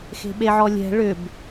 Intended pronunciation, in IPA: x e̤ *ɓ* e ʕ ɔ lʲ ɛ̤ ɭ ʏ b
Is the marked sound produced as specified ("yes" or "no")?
yes